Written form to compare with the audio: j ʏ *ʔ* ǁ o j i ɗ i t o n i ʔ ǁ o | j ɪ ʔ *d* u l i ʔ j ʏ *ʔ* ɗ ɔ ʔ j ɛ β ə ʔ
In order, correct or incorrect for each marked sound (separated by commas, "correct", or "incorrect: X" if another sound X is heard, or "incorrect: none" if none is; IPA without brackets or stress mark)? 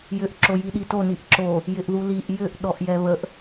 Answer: correct, incorrect: ð, correct